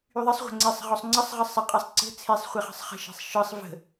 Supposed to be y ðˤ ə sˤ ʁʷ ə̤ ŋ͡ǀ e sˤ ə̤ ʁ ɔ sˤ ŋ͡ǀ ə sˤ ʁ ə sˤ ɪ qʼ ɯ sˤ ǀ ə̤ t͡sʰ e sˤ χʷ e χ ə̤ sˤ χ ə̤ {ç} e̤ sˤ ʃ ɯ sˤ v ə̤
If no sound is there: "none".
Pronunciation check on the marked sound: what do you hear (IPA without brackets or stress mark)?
ʃ